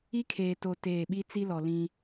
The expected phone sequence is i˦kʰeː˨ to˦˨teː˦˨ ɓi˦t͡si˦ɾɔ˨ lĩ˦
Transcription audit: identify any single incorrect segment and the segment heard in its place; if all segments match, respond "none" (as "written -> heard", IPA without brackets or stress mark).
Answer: ɾ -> l